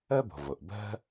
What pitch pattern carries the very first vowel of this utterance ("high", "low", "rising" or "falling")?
high